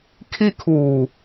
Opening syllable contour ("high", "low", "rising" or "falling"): high